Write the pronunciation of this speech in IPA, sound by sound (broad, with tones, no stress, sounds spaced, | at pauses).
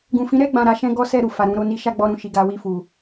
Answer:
ɡ ũ˨ f ĩ˨˦ ɾ ɛ˦˨ ɡ͡b ã˨ ɾ a˨˦ ʃ ɛ̃˦ ɡ ɔ˦ s ɛ˦˨ ɾ u˨ f a˨ ɾ ũ˨˦ ɾ o˦ n i˧ ʃ a˦ ɡ͡b ɔ˧ ɾ ũ˨ ʃ i˨ ɡ a˨˦ w i˦˨ f u˨